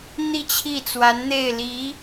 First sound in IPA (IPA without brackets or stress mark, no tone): n̪